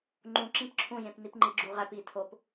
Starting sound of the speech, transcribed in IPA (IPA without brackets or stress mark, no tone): ŋ͡ǃ